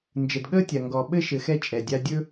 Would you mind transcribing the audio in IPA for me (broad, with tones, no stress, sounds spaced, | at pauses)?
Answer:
n d͡ʒ ə˨ d ɠ əː˦ tʲ a˨ ŋ ɡ ɔ˨ ɓ ɘ˦ ʃ ɘ˨ x ɛ˦ t͡ʃʼ ɛ˨ dʲ a˦ dʲ ɵ˦